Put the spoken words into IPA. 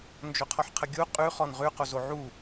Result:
nd͡ʒoqʰɔħqʰəɡʲu qʼʉ χɔnʁʉ qozoʕu

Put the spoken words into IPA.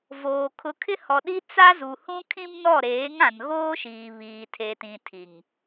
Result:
voː˨ kʰʊ˨kʰɪ˦hɔ˨ɗi˦ t͡sa˦zu˨ hũ˦kʰĩ˦mnɔ˦˨ ɾeː˨˦ŋã˨n ɣoː˦ʃiː˨ βiː˨tʰe˨tĩ˨ tʰi˨ŋ

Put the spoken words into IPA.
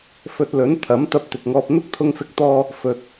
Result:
fɵ˧t̚lɵ˨˥n t̪ʰɐ˨˥m t̪ɐ˧p̚t̪ɪ˨k̚ŋɔː˧p̚ n̪ʊ˥k̚t̪ʰʊ˧ŋfɪ˧k̚t̪ɔː˧ | fɵ˨t̚

